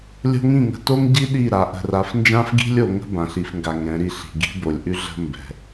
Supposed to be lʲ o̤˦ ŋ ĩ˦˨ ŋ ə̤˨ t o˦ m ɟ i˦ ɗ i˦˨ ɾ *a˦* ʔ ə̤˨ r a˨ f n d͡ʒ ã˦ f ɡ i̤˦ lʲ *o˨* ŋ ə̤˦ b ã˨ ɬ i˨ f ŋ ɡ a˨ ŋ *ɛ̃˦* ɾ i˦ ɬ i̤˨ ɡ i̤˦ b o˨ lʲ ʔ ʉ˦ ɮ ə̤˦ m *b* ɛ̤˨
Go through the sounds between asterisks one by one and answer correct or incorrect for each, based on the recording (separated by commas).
incorrect, correct, incorrect, correct